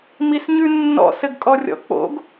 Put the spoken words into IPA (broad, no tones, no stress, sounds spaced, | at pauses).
m i s ɲ ʉ nː ɔ̰ s ɘ ɡ kʼ ɔ rʲ ɔ̰ k͡p o̰ ɡ